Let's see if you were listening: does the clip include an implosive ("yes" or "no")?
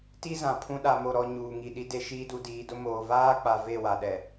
yes